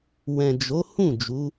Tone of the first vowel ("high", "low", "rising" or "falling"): low